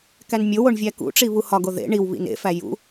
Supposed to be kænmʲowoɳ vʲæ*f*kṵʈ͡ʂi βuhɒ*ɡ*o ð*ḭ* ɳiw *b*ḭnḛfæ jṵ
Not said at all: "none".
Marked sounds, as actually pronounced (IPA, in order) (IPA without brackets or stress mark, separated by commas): none, ɡ, ḛ, β